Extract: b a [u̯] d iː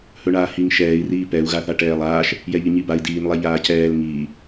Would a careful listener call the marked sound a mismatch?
yes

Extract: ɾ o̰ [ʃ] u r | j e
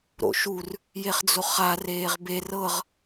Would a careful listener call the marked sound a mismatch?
no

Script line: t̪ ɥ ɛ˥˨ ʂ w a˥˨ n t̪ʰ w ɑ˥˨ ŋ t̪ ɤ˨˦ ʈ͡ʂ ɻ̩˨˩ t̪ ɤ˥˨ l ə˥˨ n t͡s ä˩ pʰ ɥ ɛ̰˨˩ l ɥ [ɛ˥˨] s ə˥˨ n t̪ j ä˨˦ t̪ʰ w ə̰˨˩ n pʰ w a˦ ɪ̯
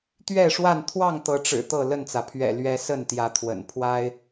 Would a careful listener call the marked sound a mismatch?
yes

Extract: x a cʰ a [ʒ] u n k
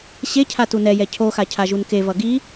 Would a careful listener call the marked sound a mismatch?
no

